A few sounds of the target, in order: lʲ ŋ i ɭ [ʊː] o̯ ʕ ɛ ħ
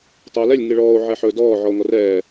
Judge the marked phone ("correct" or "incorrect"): incorrect